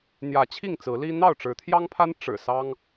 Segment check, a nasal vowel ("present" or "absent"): absent